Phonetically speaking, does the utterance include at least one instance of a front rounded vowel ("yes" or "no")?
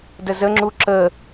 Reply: no